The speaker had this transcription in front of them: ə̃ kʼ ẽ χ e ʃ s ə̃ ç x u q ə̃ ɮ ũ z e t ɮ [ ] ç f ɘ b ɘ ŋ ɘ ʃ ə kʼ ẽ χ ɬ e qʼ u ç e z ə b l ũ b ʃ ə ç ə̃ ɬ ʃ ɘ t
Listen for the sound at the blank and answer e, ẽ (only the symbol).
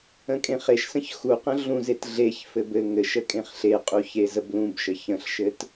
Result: e